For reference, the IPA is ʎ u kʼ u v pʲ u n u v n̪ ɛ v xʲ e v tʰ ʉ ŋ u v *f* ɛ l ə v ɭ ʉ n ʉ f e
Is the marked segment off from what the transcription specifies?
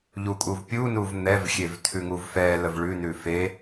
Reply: no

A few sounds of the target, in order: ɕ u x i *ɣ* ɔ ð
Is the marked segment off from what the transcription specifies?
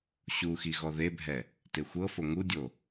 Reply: no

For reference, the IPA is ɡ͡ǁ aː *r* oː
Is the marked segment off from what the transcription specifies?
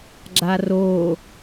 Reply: no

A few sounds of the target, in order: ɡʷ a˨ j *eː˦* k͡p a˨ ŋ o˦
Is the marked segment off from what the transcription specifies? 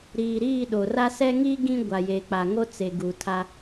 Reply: yes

